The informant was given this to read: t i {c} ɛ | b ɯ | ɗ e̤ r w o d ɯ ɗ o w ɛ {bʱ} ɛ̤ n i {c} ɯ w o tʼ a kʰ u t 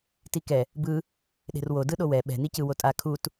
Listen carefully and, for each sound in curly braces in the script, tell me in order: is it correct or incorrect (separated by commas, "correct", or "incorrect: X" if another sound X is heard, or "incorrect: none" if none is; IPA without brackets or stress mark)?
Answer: incorrect: k, incorrect: ɓ, correct